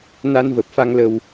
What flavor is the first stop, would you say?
plain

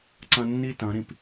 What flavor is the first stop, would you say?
click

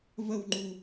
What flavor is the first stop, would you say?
click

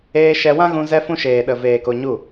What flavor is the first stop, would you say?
implosive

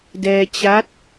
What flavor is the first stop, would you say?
plain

